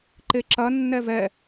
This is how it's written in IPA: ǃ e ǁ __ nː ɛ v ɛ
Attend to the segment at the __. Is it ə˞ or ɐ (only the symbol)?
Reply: ɐ